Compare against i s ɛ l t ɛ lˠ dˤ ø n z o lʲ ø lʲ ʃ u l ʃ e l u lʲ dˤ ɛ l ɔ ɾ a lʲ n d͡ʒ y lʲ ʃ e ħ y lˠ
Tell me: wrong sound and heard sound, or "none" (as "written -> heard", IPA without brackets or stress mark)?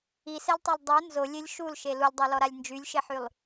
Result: t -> tˤ